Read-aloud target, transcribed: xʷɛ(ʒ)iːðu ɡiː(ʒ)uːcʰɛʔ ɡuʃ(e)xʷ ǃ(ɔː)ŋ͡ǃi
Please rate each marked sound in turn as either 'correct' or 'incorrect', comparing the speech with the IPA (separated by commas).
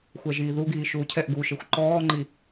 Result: correct, incorrect, correct, correct